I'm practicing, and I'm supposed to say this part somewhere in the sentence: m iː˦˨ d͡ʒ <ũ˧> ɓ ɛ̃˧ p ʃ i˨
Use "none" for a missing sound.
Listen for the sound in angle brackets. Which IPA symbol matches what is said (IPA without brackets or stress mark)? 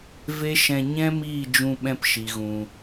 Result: ũ˧